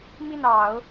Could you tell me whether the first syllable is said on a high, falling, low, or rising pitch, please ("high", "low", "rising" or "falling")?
falling